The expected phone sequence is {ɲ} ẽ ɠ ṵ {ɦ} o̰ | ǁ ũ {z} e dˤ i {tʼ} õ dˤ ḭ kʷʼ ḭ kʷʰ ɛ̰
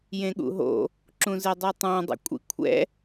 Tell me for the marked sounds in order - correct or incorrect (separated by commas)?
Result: incorrect, correct, correct, incorrect